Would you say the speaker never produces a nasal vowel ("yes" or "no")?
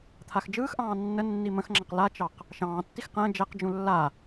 no